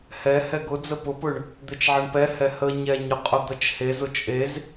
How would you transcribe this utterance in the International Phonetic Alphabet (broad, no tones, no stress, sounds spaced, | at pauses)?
h ɛ h ɛ ɡ ʊ d͡z ə p ʊ p ʊ ɳ | d̪ e t͡ʃ ʕ ɐ ɳ p ɛ h ɛ h ə ɲ ɛ ɲ ʊ qʼ ʊ d̪ ɐ t͡ʃ h e z ʊ t͡ʃʼ e z